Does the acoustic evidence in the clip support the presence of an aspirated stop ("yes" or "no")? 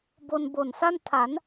yes